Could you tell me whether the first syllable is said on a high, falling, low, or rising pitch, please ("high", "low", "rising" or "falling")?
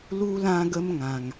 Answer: high